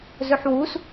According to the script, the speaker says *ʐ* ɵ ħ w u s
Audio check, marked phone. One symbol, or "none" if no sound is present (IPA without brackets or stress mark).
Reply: z